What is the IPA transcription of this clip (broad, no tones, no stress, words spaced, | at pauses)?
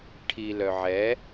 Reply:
ʈʰilœ ʕɛ